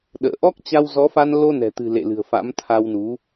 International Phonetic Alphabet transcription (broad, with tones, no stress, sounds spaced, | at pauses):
ɗ ə̰ː˧˨ ʔ ɔ˦˥ k̚ t͡ɕ a˧ w z ɔ˨˦ f a˧ n l o˧ n ɛ̤˨˩ t̪ ɨ̤˨˩ l ḛ˧˨ l ɨ̤˨˩ ə̯ f a̰˧˥ m t̪ʰ a˧ w n u˨˦